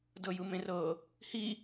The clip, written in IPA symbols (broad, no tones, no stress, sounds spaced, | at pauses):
d ɤ j ɯ m ẽ r ɤ | h i